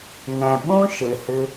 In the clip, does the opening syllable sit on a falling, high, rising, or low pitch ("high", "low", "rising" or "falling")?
low